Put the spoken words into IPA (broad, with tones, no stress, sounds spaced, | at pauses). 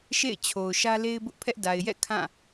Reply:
ʃ ḛ˦˨ ɪ̯ t͡ɕʰ o˨ ʊ̯ ʃ ä˦ l e˦ ɪ̯ b ʊ˦ ʔ pʰ ɛ˦ ʔ d a˨ ɪ̯ j ɛ̰˦˨ kʰ ã˦˨